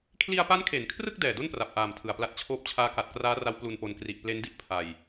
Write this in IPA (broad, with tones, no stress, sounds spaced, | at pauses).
kʰ l i˧ a̯ p a˦˥ n kʰ e˩˦ n kʰ r ɯ˥˩ k̚ d ɛː˨˩ d o˥˩ n p r a˨˩ p̚ ʔ aː˨˩ m tʰ ɯ˨˩ a̯ p l a˦˥ t̚ t͡ɕʰ oː˦˥ p̚ t͡ɕʰ aː˦˥ k a˨˩ t̚ k r aː˦˥ r a˦˥ w p l u˧ n p o˧ n k r i˨˩ ʔ p l e˦˥ n d i˥˩ ʔ pʰ a˧ j